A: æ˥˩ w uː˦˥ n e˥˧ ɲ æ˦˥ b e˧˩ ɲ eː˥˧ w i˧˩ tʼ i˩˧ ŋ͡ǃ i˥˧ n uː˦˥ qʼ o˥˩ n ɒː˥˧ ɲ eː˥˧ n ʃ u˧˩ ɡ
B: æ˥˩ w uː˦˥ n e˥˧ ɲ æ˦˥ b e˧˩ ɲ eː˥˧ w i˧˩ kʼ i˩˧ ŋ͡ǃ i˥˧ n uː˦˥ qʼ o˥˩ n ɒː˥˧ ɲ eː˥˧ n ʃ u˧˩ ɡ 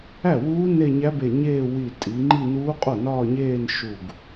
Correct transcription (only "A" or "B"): A